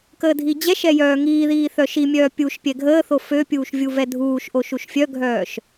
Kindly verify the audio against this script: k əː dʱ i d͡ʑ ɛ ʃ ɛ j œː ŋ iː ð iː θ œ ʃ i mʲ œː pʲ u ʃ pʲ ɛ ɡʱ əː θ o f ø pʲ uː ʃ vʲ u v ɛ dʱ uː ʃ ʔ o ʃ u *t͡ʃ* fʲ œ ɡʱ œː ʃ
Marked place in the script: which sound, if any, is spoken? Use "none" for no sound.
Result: ʃ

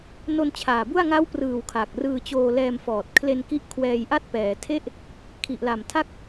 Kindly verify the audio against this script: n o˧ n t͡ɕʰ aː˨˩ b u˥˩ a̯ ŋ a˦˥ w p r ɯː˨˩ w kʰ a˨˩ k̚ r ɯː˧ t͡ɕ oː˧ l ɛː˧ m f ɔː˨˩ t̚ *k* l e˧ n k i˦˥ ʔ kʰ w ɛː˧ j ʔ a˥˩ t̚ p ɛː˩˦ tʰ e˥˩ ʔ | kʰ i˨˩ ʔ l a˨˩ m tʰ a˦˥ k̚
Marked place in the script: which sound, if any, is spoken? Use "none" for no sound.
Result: kʰ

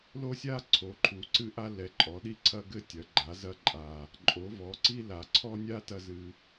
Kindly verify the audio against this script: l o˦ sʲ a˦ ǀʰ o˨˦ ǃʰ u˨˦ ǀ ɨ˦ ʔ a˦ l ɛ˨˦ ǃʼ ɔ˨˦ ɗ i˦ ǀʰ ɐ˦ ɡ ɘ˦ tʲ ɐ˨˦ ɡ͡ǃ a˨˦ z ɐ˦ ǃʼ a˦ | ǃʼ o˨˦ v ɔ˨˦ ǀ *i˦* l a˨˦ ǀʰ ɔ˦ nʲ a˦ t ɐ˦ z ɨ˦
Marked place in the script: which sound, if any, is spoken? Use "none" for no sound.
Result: i˦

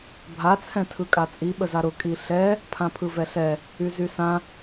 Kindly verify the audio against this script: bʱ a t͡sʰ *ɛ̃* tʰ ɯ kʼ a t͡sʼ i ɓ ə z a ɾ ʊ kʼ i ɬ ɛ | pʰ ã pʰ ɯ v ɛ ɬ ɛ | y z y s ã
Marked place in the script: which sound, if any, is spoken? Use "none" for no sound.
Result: ɛ̃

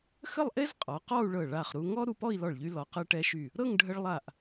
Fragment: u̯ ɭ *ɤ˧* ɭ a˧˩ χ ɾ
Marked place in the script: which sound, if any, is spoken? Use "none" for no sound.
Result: ɤ˧˩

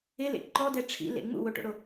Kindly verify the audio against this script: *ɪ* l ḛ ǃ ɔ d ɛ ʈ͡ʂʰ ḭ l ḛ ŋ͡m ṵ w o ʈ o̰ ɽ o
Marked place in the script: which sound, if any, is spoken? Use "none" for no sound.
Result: ɪ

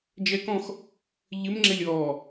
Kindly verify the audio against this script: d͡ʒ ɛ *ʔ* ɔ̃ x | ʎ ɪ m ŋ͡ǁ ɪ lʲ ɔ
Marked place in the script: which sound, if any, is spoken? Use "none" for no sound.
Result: k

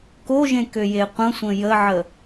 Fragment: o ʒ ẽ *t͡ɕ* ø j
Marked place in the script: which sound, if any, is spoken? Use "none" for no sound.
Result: k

